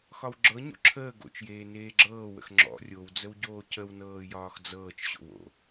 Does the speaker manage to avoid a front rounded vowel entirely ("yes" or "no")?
yes